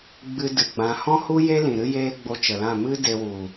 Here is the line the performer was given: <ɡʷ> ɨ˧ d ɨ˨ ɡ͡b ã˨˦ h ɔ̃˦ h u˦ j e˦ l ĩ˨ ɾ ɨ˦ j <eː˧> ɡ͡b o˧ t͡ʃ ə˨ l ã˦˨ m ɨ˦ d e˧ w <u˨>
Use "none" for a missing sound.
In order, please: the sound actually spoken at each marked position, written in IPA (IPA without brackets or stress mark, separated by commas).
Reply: ɡ͡b, eː˦, u˨